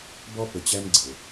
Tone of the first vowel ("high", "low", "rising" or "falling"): high